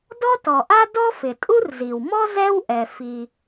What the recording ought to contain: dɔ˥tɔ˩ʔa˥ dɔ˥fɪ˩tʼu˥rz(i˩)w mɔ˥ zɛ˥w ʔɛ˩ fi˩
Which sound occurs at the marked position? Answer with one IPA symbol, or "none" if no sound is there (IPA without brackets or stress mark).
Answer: i˩